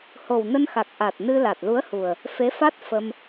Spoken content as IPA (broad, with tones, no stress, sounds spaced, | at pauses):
h o˨˩ w n ə˧ n x a˨˩ k̚ ʔ a˨˩ t̚ n ɨ˧ l a˨˩ t̚ l u˨˦ ə̯ h u˨˩ ə̯ | f e˨˦ f a˦˥ t̚ f ə˧ m